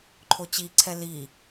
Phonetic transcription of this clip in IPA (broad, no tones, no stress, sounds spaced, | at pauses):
ǃʰ o t͡ɕ i ǀʰ ɛ l i